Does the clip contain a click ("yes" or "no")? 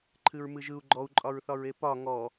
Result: yes